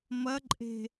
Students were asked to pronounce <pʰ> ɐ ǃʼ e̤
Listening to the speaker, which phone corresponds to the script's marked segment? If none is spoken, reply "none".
m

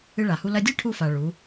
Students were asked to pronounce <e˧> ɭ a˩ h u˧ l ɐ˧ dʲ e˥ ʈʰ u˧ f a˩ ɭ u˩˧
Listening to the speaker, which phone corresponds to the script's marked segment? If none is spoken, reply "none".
ɨ˧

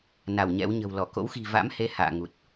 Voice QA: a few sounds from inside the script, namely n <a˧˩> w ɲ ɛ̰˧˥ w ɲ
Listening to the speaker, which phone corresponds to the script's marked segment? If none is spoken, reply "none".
a˧˩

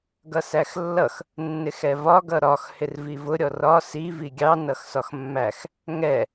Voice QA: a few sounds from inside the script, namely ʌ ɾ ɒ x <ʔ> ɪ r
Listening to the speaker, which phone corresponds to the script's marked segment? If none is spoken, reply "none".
h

